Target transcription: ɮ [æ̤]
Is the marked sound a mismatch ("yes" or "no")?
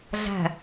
no